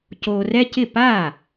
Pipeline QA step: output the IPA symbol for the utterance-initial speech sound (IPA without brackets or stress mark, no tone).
c